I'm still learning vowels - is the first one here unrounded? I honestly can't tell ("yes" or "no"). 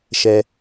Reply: yes